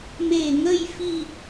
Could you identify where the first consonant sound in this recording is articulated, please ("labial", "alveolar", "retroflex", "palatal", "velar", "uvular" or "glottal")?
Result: labial